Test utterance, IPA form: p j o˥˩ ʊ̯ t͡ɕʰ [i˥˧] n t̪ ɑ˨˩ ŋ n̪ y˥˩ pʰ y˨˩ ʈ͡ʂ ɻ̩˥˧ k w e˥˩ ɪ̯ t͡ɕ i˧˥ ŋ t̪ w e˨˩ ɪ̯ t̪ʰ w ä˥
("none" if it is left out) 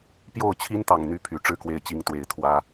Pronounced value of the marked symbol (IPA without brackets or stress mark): i˥